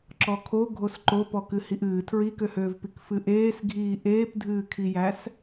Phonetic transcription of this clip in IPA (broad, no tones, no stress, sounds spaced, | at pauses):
ǁ ɔ kʰ o ɡʱ o s ǃ o p ɔ k ɨ h i ʔ ɨː tʰ ɹ i k ø h øː v p i k f ɨ ʔ eː s ɡʱ iː ʔ eː p dʱ ɨː kʰ i j æ s